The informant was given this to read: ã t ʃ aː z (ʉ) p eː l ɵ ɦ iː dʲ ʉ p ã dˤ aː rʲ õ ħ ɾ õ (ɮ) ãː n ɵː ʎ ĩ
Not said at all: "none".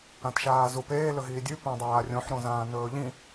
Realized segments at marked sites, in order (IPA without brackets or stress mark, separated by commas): u, z